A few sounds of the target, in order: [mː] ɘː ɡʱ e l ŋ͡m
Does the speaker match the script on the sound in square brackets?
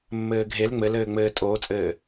yes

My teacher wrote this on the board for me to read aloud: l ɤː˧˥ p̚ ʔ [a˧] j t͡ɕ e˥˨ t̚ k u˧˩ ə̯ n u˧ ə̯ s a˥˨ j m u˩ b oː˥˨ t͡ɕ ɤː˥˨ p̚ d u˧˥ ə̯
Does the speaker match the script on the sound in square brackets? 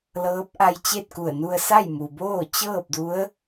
yes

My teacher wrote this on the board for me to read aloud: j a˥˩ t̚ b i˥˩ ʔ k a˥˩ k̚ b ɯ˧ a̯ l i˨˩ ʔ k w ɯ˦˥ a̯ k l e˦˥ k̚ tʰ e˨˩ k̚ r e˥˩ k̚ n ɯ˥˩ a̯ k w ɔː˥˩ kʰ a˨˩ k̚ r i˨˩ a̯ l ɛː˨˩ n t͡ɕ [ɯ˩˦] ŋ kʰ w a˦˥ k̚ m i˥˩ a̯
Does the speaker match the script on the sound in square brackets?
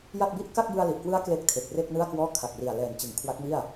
yes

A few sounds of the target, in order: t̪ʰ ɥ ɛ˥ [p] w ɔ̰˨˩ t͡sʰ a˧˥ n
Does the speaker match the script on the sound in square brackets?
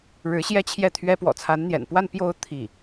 yes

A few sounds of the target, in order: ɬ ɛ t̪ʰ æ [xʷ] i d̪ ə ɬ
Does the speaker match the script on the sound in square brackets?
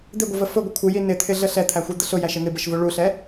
yes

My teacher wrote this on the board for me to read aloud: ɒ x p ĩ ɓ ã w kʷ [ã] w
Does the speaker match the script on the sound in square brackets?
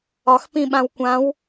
yes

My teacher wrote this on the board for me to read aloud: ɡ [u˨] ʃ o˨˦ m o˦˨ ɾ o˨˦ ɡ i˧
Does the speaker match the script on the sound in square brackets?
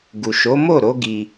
yes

